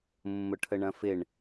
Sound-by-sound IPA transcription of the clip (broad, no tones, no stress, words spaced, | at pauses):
mːʊʈʰəɳɐ̃fɪɳ